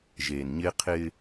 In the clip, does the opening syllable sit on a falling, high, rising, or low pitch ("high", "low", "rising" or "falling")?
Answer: low